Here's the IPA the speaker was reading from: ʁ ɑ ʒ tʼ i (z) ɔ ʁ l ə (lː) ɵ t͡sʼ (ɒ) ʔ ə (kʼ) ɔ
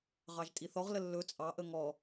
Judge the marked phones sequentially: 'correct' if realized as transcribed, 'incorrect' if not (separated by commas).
incorrect, correct, incorrect, incorrect